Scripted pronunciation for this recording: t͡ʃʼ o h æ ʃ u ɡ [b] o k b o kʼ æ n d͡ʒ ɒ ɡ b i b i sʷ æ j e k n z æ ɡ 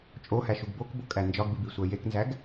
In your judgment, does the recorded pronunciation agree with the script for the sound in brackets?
yes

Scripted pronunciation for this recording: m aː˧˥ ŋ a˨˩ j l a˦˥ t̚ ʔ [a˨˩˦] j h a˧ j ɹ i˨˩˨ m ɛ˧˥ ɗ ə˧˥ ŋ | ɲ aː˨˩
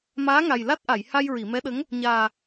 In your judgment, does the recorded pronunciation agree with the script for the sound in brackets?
no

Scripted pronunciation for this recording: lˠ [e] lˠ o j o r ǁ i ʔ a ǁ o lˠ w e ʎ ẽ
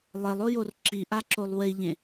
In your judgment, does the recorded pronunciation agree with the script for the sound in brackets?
yes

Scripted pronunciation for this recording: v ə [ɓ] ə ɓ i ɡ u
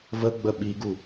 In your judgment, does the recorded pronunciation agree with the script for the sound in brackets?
no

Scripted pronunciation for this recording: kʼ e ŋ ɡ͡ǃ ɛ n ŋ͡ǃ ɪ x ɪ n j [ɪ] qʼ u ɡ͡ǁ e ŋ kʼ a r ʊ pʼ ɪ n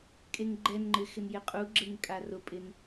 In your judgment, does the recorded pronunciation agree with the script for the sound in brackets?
yes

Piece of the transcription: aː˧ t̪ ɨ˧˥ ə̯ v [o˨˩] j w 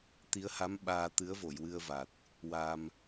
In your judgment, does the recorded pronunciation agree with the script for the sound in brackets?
no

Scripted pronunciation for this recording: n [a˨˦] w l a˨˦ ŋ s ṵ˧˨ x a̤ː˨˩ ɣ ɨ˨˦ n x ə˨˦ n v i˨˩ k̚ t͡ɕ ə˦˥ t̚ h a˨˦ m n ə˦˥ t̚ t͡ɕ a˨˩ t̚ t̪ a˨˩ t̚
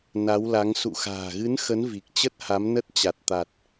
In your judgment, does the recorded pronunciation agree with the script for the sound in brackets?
yes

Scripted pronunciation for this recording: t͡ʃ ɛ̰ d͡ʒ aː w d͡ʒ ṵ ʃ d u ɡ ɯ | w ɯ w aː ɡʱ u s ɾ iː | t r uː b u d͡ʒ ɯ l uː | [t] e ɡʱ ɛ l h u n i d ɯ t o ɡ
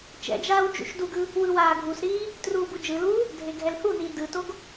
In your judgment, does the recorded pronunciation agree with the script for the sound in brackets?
no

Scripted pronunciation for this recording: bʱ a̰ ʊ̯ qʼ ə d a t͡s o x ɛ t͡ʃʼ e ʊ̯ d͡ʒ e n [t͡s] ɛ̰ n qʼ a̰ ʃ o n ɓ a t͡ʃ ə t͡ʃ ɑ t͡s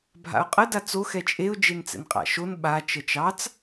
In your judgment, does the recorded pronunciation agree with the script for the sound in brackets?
yes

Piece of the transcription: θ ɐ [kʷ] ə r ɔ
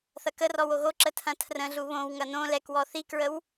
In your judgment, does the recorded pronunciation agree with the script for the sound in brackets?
no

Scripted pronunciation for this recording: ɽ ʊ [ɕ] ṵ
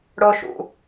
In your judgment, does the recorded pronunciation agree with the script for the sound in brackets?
no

